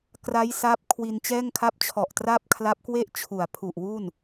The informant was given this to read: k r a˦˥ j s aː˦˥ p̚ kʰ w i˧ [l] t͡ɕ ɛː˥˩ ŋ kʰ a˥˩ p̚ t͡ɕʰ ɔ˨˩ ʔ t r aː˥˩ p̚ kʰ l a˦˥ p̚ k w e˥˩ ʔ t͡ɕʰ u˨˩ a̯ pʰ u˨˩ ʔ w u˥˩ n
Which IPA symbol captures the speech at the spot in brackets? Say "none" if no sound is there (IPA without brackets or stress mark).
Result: n